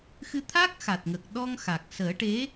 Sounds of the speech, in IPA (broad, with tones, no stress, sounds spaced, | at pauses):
x ɨ˧ t̪ʰ a˦˥ k̚ x a˨˩ t̚ ŋ ə˨˩ k̚ ɗ ɔ˧ ŋ x a˨˩ k̚ s əː˨˩˦ ʈ e˧˥